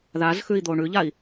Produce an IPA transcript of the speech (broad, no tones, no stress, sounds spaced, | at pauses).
ð a z x ʉ i̯ d̪ o ɳ ʉ ʎ a i̯